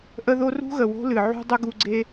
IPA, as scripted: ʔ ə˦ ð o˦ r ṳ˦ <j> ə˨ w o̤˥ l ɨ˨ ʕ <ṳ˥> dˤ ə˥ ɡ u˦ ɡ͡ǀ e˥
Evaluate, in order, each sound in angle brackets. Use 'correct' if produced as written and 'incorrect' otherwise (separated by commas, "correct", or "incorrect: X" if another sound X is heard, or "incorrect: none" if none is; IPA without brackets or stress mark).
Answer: incorrect: ɣ, correct